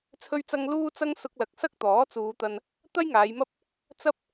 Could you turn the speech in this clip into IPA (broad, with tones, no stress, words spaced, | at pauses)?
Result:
t͡sʰɵ˥ɥt͡sɐ˥ŋ luː˥t͡sɐ˥ŋ sʊ˧k̚lɐ˨k̚ sɐ˥k̚t̪ɔː˨˥t͡suː˨˧t̪ɐ˧n | t̪ɐ˥jŋaː˨˧jmɐ˥p̚ | t͡sɐ˥p̚